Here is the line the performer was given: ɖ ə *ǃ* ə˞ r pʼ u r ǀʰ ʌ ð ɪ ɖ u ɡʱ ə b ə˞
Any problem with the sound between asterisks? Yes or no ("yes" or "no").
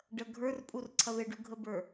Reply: yes